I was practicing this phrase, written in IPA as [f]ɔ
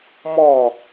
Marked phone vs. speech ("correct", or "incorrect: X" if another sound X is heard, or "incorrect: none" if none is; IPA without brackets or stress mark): incorrect: m